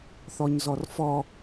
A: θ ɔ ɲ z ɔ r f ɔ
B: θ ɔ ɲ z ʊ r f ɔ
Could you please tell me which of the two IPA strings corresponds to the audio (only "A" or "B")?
A